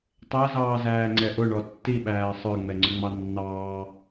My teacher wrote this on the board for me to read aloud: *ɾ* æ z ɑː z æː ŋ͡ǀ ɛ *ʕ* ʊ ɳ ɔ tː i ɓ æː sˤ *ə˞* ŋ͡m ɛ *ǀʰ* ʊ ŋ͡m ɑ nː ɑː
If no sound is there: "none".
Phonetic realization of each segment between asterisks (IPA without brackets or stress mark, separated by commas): tˤ, ʔ, ə˞, ŋ͡ǀ